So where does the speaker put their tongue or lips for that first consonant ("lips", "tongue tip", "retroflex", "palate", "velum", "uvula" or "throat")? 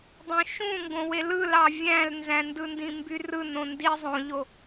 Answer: tongue tip